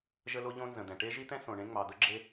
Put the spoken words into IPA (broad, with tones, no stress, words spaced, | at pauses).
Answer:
ʒə˥lo˥ʎõ˥nzə̃˩ d̪ɛ̃˩ʈe˥ʒi˥t̪ɛ̃˥ sõ˩ɳẽ˥ŋ͡mɑ˩d̪ə˥ ɡ͡ǁe˥